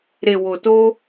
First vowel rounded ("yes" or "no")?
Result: no